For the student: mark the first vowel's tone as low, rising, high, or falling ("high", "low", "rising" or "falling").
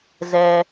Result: low